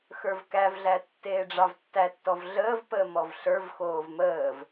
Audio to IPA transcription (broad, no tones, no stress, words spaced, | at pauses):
xə˞vkævɮæ tːeːɖ͡ʐɑvtːætːɔv ɮəːv pəːmɔvɬə˞v xoːvməːv